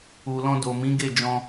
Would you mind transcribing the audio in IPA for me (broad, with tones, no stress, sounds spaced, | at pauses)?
u˨ l ɔ̃˧ d o˨ m ĩ˨˦ ɡ e˦˨ d͡ʒ ɔ̃˧